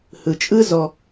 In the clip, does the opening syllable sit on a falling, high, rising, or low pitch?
low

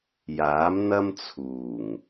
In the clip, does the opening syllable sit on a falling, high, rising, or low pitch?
rising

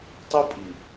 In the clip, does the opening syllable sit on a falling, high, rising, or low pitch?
high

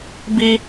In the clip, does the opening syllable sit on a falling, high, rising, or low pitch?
high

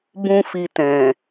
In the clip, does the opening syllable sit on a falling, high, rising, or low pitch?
high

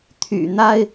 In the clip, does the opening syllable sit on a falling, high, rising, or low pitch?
low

